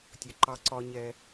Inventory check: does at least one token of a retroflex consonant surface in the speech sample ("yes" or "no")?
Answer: no